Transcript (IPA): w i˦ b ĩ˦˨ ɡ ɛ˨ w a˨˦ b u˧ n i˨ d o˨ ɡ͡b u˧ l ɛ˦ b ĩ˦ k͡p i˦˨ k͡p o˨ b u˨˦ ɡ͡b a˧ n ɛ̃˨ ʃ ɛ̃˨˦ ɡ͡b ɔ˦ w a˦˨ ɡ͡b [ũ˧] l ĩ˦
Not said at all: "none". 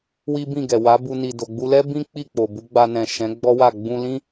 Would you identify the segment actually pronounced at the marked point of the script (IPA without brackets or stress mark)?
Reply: ũ˧